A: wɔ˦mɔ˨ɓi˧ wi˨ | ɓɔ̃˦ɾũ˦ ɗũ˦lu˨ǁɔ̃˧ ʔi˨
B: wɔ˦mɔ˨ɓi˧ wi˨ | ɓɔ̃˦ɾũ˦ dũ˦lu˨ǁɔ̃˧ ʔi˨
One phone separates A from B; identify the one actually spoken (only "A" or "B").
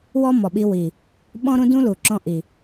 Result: B